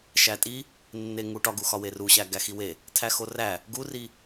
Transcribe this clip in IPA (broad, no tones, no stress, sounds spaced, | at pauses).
ʃ æ tʼ i | nː e ŋ u ʈ ɒ ɡ u x ɒ w e r u ɕ æ ɡ æ x i w e | tʰ æ x o r æ | ɡ u r i